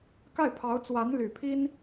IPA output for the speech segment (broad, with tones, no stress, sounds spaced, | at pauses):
k a˥˩ ɪ̯ pʰ ɑ˧˥ ʊ̯ t͡s w a˧˥ n l y˨˩ pʰ i˥ n